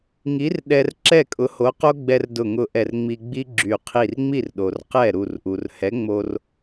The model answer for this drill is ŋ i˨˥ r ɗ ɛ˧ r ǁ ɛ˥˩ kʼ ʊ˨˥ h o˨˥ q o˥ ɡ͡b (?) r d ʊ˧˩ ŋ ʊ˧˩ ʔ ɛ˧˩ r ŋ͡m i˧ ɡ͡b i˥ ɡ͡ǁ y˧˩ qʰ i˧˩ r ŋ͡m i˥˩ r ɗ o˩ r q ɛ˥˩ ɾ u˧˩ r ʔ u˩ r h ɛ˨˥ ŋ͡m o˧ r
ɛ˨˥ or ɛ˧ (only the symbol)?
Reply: ɛ˧